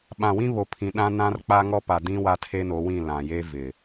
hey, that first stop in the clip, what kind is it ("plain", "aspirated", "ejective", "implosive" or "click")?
implosive